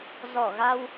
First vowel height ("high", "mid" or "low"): mid